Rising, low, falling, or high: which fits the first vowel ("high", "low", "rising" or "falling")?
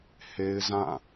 high